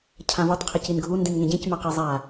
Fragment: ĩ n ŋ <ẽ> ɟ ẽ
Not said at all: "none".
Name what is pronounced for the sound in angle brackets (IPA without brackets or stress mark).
ẽ